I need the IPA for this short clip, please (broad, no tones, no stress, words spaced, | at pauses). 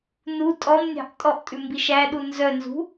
nu tʼɔmnʲɑ̤ʔ tʼɔʔtʼʉ mbiʃæɗu nzœnzṳ